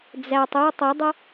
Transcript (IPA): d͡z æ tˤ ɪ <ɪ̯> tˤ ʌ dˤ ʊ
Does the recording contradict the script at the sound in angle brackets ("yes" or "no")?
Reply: yes